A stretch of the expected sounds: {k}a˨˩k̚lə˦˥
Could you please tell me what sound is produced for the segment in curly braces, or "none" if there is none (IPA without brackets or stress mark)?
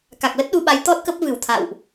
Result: k